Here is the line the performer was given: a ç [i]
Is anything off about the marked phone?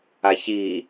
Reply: no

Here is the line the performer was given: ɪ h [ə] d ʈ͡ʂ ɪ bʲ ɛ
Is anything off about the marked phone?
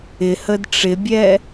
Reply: no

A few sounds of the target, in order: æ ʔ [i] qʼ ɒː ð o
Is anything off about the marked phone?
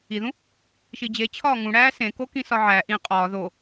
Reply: yes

